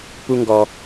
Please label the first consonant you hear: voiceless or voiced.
voiceless